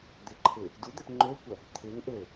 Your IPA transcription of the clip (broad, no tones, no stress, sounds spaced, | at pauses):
d̪ ɪ ǃʰ ɪː | d u d̪ ɛ p ŋ͡ǃ ø kʷ ɐ | t̪ʰ ɪː ŋ ʔ ø